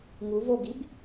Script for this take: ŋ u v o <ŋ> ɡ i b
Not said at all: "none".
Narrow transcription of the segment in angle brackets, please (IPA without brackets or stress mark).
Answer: none